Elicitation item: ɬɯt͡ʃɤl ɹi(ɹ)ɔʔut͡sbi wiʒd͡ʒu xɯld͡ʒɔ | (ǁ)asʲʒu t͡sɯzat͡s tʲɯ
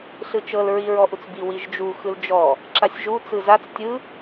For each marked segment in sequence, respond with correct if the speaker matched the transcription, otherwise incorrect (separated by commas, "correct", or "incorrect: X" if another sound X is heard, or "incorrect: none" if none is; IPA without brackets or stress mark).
correct, correct